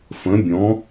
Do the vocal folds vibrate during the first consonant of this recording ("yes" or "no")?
no